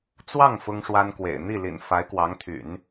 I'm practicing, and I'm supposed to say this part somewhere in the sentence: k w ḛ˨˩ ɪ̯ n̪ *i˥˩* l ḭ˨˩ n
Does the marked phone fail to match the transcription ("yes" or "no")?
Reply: no